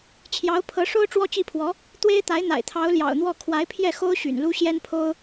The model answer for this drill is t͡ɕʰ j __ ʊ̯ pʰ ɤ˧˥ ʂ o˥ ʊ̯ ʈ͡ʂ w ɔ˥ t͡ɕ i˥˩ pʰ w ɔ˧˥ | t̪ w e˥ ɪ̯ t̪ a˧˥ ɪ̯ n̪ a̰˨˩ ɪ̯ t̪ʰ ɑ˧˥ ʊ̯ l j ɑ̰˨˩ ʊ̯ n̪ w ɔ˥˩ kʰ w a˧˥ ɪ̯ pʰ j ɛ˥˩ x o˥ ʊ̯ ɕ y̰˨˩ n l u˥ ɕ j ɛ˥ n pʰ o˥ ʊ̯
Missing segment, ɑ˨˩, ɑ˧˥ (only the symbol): ɑ˧˥